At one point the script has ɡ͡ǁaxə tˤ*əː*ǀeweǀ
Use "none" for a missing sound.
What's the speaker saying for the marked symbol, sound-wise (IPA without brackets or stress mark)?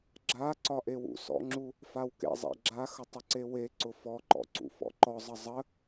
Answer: ə